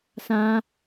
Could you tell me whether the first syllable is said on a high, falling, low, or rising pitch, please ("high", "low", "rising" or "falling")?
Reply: high